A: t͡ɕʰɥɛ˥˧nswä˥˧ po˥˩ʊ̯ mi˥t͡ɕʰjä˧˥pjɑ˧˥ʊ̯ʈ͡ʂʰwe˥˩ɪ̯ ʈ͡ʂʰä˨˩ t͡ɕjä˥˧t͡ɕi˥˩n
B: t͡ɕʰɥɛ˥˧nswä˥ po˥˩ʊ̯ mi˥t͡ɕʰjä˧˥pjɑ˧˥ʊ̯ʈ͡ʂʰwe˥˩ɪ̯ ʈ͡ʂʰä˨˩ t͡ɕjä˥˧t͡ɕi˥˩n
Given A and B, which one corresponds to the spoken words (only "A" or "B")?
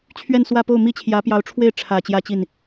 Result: A